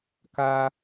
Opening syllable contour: high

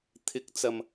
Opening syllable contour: rising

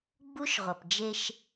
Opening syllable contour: high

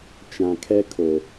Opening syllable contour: low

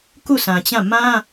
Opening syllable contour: falling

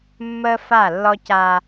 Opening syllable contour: high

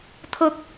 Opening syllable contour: high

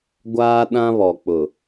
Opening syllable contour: high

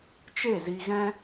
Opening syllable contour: falling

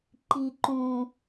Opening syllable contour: low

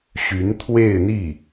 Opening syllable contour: rising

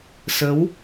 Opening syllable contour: rising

